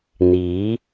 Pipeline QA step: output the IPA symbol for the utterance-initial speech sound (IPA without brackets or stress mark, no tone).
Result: n̪